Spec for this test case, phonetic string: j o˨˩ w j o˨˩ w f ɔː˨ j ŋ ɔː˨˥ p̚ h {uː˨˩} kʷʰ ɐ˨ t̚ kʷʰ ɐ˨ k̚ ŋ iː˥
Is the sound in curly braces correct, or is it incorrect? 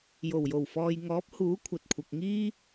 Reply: incorrect